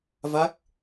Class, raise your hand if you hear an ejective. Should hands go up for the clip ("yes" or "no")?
no